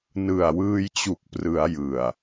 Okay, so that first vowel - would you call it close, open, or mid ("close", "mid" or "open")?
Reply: close